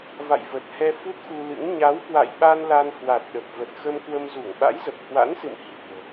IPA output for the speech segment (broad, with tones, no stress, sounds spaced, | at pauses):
v a̰˧˨ j v ə˨˩ t̚ h ɛ˧ f u˦˥ t̚ x u˧ l ɨ̰˧˥ ŋ ɲ a˨˦ w k w a̰˧˨ j ɓ a˧ n l a˧ n h w a˨˩ t̚ ɗ ə˨˩ p̚ v ə˨˩ t̚ x ə˧ m k w ə˧ m z u˧˩ ŋ ɓ a̰˧˥ j z ə˨˩ p̚ h w a̰˧˥ n s ɨ̰˧˨ m h i̤˨˩ ə̯